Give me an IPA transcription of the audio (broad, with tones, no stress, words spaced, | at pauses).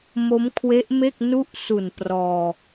mo˦˥mkʰwe˦˥ʔ me˥˩k̚ nu˥˩ʔsu˨˩n prɔː˧